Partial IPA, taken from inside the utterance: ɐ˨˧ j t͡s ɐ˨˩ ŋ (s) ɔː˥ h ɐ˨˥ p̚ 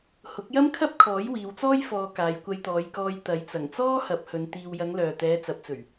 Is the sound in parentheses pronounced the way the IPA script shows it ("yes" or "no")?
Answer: no